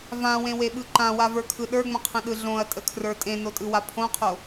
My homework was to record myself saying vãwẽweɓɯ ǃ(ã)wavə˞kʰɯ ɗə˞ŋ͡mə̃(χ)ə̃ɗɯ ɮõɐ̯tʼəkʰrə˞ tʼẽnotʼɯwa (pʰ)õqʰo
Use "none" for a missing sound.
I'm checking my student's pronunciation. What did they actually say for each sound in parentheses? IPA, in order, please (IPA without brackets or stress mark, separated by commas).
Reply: ã, qʰ, pʰ